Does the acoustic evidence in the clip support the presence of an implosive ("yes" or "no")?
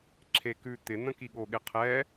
yes